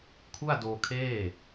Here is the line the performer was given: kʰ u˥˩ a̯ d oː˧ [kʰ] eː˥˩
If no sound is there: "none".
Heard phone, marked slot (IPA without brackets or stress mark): kʰ